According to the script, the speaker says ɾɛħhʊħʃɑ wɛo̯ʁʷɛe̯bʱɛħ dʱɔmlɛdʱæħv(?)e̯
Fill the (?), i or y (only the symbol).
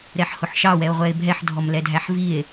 i